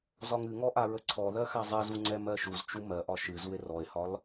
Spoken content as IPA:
z ɒ ŋ ɨ ŋ ɔ ʔ a ɹ ə ǀʰ ɔ ð ɜ x a zˤ e z u ŋ͡ǀ ɛ m ɜ ʃ u z t͡ʃ u m ɜ ʔ ɒ ʃ ɨ z u e̯ r ɔ e̯ h ɒ l

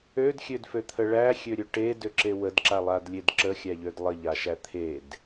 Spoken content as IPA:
ø d xʲ ø d f ø t̪ʰ ə ɭ æ xʲ ø ɾʲ ø ʈ e d ø ǁ e w ə d ǁ a lˠ a d lʲ e d ǁ ə xʲ æ ʎ ø d lˠ ə ʎ a ʃ æ t̪ʰ e d

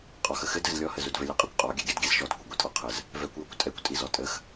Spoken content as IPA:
qʼ ɔ x ə x ɘ d ɘ z lʲ ɔ h ə z u d v ɘ lʲ ɘ qʼ ə kʷ qʼ ɔ ɡʲ ɛ ɡʲ ɛ d ɡʲ ɛ z ʃ ɔ d kʷ i ɡʷ i tʼ ɔ qʰ ə z | v ɛ kʷ j ɔ kʷ tʼ ɛ kʷ tʼ i z ɔ tʼ ə x

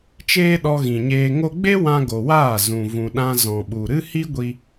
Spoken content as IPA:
t͡ʃ eː˦ ɗ ɔ˧ ɣ ĩ˨ ɲ eː˧ ŋ o˧ ɡ͡b e˦ w ã˧ ɡ o˨ w aː˦˨ z ũ˨ v ũ˨ ɗ ã˧ z ɔ̃˨ ɓ u˨ ɾ ɨ˦ h i˦ ɡʷ i˧

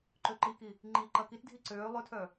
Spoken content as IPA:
ǃ ø ǃ i k i | ŋ͡ǃ i ǃ ɐ k i t dʱ i ǀ øː lˠ ʏ tʰ œ

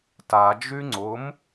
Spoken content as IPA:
t a d͡ʒ y ŋ͡ǀ ʊ m

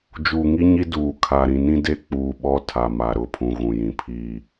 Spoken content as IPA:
d͡ʒ uː˨ ŋ i˦ ɲ i˦ d uː˨ kʰ a˨ ɾ ĩ˨ n ĩ˦ d e˦ k͡p uː˨ ɓ ɔ˦ tʰ a˨ m a˨ ɾ ʊ˦˨ pʰ ũ˨ ɣ ũ˨ j ĩ˨ pʰ iː˦˨

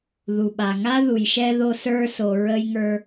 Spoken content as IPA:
ð u˩ ɓ a˩ ŋ a˦ ð u˩ j ʃ ɛ˦ ð o˦ s ə˞˦ s o˨ ɹ ə˥ j ŋ ə˞˥

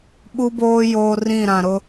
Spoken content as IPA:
ɓ u˦ b oː˦ j oː˦ r ĩ˦˨ ɾ ã˨ ɾ ʊ˦

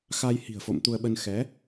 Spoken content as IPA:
x aː˧ j h i̤˨˩ ə̯ f o̰˧˨ m t̪ u˧ ə̯ ɓ ə˧ n x ɛ˨˦

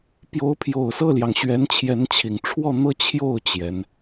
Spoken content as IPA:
p j o˧˥ ʊ̯ pʰ j o˨˩ ʊ̯ s ɤ˥˩ l j ɑ˩ ŋ ɕ ɥ ɛ˧˥ n t͡ɕʰ j ɛ˧˥ n t͡ɕʰ i˨˩ ŋ ʈ͡ʂʰ w ɔ˥˧ n̪ ɤ˥˧ t͡ɕʰ j o˥˩ ʊ̯ t͡ɕ j ɛ˧˥ n

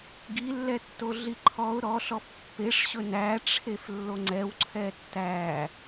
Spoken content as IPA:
ɡ i lː ɛ tː o ɮ i ǃʰ ɔ ʊ̯ ɾ ɔ ɬ ɔ f pː e ʂ ɕ ɵ n æ ʈ͡ʂʰ e f lː o ŋ͡ǀ ɛ w ǀʰ ɛ tː æ

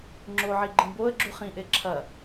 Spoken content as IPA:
ŋ͡ǁ o ʕ i ɡ͡ǃ ĩ b o ə̯ ɡ͡ǁ u χ ĩ ʔ e ǁʰ ɐ

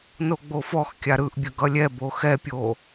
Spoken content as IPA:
n o ɡ͡b o f ɔ x kʲ a ɾ ɯ ʔ bʲ ə ɡ ʌ lʲ ɛ b o x ɛ pʲ o

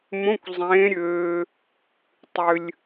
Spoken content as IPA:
m õ˧˥˧ kʷ zˤ ẽː˨˦ ɾʲ øː˨ | tˤ ʏ˨ lʲ

